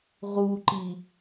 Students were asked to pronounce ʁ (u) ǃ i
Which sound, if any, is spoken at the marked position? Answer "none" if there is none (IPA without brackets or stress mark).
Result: u